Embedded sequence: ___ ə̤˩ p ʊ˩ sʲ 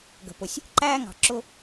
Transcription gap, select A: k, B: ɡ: B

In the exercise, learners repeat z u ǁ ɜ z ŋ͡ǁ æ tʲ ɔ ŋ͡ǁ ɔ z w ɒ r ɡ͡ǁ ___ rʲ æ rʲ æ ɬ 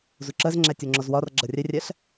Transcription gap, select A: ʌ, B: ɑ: A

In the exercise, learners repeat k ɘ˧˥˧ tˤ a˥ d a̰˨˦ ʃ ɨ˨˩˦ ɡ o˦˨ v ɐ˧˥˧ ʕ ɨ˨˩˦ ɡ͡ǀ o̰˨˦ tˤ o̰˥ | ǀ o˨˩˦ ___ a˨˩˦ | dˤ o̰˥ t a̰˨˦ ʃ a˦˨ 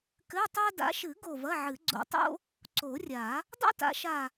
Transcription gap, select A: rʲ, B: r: A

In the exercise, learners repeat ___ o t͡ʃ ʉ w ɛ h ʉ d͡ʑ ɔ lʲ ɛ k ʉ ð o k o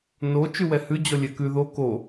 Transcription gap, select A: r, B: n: B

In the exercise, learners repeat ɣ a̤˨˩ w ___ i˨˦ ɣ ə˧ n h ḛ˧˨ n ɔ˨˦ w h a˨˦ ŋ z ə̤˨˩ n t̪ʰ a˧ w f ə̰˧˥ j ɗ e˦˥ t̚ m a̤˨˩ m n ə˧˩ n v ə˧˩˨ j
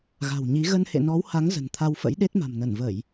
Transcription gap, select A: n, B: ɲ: B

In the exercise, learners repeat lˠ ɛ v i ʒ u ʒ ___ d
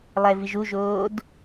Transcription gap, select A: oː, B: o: A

